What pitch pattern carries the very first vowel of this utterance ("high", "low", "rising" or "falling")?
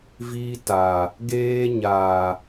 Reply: high